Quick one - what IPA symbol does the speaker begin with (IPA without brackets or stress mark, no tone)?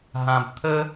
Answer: ɦ